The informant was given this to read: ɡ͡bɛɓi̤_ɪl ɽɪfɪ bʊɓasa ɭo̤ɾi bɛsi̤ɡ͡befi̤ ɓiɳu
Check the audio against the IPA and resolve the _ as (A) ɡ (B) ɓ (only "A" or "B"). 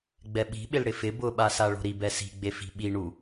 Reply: B